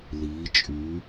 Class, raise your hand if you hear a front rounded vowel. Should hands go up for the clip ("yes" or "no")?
yes